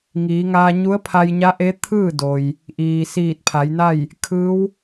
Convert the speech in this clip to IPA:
ŋ iː˩˧ ŋ aː˧ ɲ u˧˥ ə̯ pʰ a˧ j ɲ a˧˥ ʔ e˧˥ t̪ʰ ɯː˥˨ d o˩ j | ʔ iː˩ s iː˧˩ t̚ pʰ a˩˧ j n a˥˨ j | kʰ ɯː˧˥ w

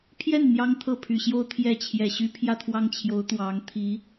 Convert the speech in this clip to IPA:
pʰ j ɛ˥˩ n n̪ j ɑ˥ ŋ t̪ʰ ɤ˥˩ pʰ y˨˩ ɕ j o˥ ʊ̯ t̪ʰ j ɛ˥˩ t͡ɕʰ j ɛ˨˩ ɕ y˥ pʰ j ä˥˧ t̪ʰ w ɑ˥˩ ŋ t͡ɕʰ j o˧˥ ʊ̯ t̪ w ɑ˧˥ ŋ t̪ʰ i˧˥

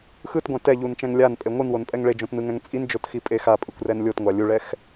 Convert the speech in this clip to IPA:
x ɯ t ɡʷ ɛ̃ t ɛ ʎ u n t͡ʃ ɛ̃ ŋ lʲ a n pʼ e ŋʷ ɯ n w o n pʼ ɛ ŋ ɭ e d͡ʒ õ t n ɯ ŋ ɛ̃ ŋ t͡sʼ i n d͡ʒ o t x i pʼ e x a pʼ ɯ kʷ r ɛ n lʲ o t ŋʷ a lʲ u ɭ ɛ x

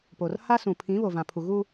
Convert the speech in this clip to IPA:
p o˨ r h a˦ s ũ˨ pʰ ĩ˨˦ β o˨ v ã˨ pʰ u˨ ɣ u˦

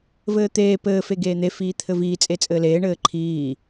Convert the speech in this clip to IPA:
v ɘː t̪ eː p ɘː f e ɡ eː n̪ e f iː t̪ʰ ɘ v iː t͡sʼ e t͡sʼ ɘː l eː ɳ ɘː ǃʰ iː

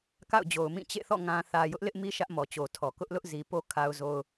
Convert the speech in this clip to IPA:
k a̰˦˨ ʊ̯ d͡ʑ o˨ ʊ̯ m ĩ˦˨ t͡ɕ ḛ˦˨ θ ɔ̰˦˨ ŋ ã˨ θ ä˨ j ʊ˦ ʔ l ɪ˦ ʔ m i˦ ʃ ä˦ ʔ m ɔ˨ t͡ɕ o˨ tʰ ɔ˨ k ʊ˦ ʔ l ʊ˦ ʔ z i˨ p o˦ kʰ a˦ ʊ̯ z o˦ ʊ̯

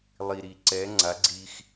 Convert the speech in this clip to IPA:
lˠ i˨ ɾ i˨ ǀ ɛ˨˦ ŋ͡ǀ a˨˦ ɡ͡ǀ i˧ x

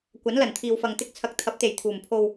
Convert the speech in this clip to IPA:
kʷ ɐ˨˥ n l ɐ˨˩ n t̪ʰ iː˨ w f ɐ˨ ŋ t̪ ɪ˧ k̚ t͡sʰ ɐ˨˥ k̚ t̪ʰ ɐ˨˥ p̚ t̪ e˨˩ j t̪ʰ uː˨˩ m pʰ o˨ w

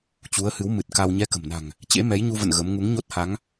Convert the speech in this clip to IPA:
t͡ɕ u˨˦ ə̯ h ɨ˨˦ w m ɨ˨˩ t̚ k a˧ w ɲ ɛ˧ k ə̤˨˩ m n a̤˨˩ ŋ | t͡ɕ ḛ˧˥ m ɛ˨˦ j ɲ u˧ v ə̰˧˨ n ɣ ə˨˦ m ŋ u˨˦ ŋ ɲ o˦˥ t̚ h a˨˦ ŋ

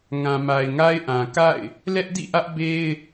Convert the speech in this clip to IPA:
ŋ ã˨ m a˨ ɪ̯ ŋ a˦ ɪ̯ ʔ ã˨ k a̰˦˨ ɪ̯ | l ɛ˦ ʔ d ḭ˦˨ ʔ ä˦ ʔ b e˦ ɪ̯

